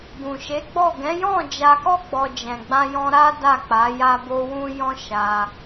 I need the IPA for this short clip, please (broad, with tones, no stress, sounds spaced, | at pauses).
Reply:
ɡ ũ˨ ʃ e˨˦ ɡ͡b ɔ˦˨ ɡ ɛ̃˨˦ j ɔ̃˦˨ d͡ʒ a˧ k ɔ˦ ɡ͡b ɔ˧ d͡ʒ ɛ̃˨ ɡ͡b ã˧ j ɔ̃˧ ɾ a˦ d a˦˨ k͡p a˨˦ j a˦ b o˦ w ũ˦ j ɔ̃˦ ʃ a˧